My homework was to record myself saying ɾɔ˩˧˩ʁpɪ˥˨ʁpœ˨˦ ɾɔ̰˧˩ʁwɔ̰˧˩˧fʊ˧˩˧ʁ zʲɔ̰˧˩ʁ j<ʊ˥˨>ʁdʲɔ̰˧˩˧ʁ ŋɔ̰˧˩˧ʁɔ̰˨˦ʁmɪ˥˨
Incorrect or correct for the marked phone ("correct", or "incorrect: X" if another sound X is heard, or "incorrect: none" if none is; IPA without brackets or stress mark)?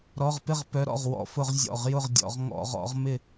correct